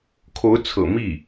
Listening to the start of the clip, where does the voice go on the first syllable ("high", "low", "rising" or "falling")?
rising